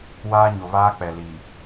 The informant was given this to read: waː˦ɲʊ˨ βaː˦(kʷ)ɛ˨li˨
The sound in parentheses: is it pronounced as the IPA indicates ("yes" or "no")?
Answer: no